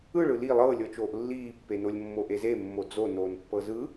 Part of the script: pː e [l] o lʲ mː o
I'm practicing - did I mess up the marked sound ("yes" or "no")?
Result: yes